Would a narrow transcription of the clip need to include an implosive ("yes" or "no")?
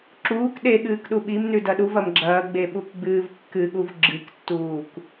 yes